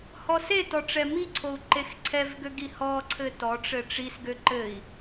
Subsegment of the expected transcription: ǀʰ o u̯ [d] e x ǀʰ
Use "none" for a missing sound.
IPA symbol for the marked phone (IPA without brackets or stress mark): ǃ